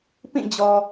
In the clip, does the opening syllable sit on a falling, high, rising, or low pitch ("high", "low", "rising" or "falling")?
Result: falling